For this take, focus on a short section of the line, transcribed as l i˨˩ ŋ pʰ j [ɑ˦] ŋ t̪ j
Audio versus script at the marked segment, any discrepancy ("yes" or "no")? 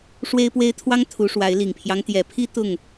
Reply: no